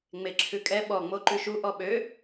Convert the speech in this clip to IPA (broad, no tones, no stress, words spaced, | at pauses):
ŋ͡meǁʰʉkʼɛ ɓɔ ŋ͡moǃʉʃu ʔɔɓø